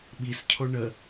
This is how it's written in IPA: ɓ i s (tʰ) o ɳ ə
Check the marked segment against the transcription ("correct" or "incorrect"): incorrect